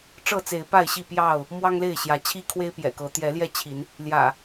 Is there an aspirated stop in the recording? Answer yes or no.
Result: yes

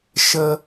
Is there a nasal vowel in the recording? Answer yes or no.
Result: no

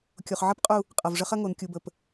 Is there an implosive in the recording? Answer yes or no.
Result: no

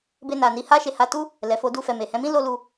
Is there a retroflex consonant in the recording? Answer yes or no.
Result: no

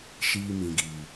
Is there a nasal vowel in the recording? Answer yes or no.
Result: yes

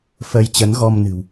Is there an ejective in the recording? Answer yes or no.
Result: no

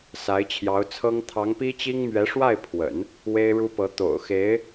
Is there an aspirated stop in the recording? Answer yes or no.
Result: yes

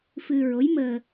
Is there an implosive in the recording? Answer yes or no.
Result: no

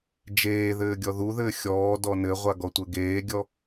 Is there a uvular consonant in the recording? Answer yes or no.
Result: yes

